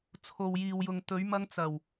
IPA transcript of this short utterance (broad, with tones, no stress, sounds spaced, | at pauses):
t͡sʰ o˨ w j iː˨ w j ʊ˨ ŋ t̪ ɵ˨˥ ɥ m ɐ˥ ŋ t͡s ɐ˨˩ w